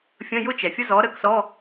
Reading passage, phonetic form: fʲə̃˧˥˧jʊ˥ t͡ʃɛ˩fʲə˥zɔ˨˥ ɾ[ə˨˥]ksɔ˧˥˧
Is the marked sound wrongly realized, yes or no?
no